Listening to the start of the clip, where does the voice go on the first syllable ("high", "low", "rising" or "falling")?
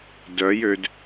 rising